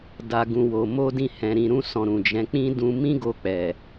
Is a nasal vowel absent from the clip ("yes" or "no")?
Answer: no